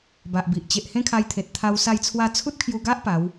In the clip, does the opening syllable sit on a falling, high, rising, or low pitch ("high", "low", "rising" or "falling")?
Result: low